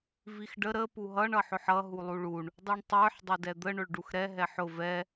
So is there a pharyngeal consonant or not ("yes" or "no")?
yes